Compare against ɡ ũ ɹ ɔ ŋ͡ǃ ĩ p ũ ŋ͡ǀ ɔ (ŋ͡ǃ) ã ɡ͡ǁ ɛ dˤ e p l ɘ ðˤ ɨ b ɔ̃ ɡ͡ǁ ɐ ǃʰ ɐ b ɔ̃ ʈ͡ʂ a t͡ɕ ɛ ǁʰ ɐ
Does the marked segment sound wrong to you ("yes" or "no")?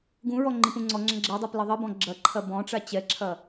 yes